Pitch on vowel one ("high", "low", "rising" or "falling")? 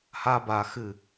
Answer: high